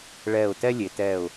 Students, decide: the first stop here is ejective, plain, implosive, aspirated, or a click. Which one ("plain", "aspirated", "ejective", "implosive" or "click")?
plain